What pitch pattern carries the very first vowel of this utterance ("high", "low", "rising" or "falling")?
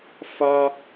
high